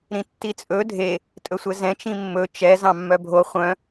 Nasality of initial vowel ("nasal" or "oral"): nasal